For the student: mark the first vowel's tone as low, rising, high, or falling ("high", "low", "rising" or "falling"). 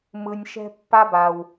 low